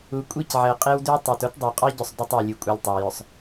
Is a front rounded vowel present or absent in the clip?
present